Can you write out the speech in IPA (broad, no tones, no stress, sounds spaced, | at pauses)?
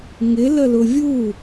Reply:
ŋ ɪ l ə l ʊ vʲ u